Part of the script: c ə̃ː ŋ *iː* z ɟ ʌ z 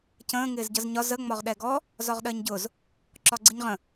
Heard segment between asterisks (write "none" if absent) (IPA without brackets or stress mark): ɪː